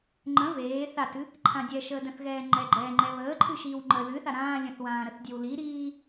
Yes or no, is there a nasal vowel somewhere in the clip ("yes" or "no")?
yes